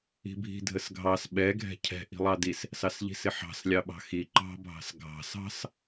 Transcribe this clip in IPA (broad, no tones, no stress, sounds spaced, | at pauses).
i̤ bʱ i̤ dʱ ə s ɡʱ ɑ s ɓ ɛ ɡʱ ɛ̤ cʰ ɛ̤ ʔ i̤ lˠ ɑ d i s | s ɑ s ʎ i̤ s ɪ ħ ɑ̤ s lʲ ɑ ɓ ɑ̤ x i ǃ ɑ̤ bʱ ɑ̤ s ɡʱ ɑ̤ s ɑ̤ s